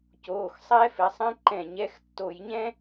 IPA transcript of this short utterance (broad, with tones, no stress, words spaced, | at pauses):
coː˩˧˩xsˤɛ˦˥fɪ˩˧˩sˤɛ̃˦˥ ǃɛ̃˧˩˧ɲɛ˦˥x tːo˧˩˧jɲɛ̃˦˥